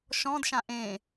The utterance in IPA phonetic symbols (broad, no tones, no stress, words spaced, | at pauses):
ʃɔ̃dʃã ʔẽ